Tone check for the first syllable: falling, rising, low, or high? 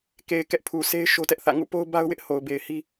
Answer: low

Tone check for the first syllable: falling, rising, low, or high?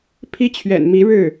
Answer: high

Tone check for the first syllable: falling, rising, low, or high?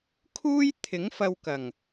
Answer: high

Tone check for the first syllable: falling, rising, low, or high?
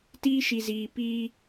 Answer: high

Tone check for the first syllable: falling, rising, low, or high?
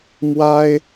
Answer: high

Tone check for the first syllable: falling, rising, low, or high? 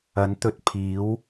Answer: rising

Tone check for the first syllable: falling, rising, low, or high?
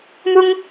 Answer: high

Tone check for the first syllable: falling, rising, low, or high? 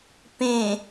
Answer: low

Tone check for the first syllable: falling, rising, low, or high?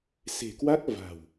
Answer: low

